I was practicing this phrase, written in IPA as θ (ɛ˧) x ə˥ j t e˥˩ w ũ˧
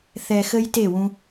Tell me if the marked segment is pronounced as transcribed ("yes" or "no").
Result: yes